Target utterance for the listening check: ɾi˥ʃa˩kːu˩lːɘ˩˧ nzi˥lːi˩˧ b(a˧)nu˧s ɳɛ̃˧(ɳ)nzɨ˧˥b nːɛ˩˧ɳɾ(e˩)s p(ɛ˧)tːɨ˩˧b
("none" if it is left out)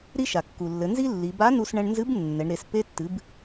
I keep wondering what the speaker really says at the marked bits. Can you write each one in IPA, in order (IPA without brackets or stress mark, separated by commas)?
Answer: a˧˥, ɳ, e˩˧, e˧